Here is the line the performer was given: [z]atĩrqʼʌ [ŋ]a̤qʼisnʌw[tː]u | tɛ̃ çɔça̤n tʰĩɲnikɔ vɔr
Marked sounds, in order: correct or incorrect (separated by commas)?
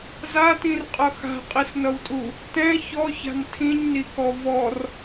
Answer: correct, incorrect, incorrect